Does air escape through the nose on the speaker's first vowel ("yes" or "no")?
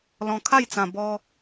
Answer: yes